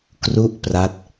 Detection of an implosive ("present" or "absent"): absent